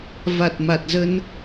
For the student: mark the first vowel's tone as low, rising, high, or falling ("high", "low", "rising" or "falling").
low